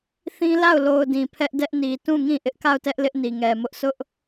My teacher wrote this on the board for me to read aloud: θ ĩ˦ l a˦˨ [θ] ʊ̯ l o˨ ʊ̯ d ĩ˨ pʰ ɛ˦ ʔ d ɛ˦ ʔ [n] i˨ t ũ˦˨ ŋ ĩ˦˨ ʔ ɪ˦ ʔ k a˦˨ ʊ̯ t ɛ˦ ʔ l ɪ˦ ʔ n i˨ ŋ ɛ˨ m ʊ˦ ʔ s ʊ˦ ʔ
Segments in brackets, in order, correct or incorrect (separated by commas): incorrect, correct